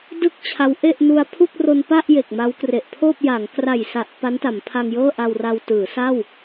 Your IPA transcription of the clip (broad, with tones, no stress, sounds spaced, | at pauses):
d ɯ˥˩ k̚ t͡ɕʰ a˦˥ w ʔ e˥˩ ʔ n u˧ a̯ pʰ u˥˩ k̚ r o˧ n p a˥˩ ʔ j e˨˩ k̚ m a˦˥ w k r e˨˩ ʔ pʰ oː˥˩ p̚ j a˩˦ ŋ k r a˨˩ j s a˨˩ ʔ p a˦˥ n t a˩˦ m pʰ a˧ ŋ j ɤː˥˩ ʔ a˧ w r a˧ w t ɯː˩˦ s a˥˩ w